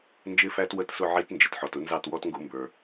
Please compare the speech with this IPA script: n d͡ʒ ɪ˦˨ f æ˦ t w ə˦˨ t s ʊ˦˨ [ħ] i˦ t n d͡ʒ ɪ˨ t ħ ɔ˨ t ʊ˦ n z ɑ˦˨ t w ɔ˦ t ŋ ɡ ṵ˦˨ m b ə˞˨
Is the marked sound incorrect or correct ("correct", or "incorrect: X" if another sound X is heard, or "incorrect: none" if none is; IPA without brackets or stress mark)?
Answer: incorrect: ʕ